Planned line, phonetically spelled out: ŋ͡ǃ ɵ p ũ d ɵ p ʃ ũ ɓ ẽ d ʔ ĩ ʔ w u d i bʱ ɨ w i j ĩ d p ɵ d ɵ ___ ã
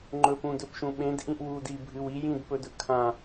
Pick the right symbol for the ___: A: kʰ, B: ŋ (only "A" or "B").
A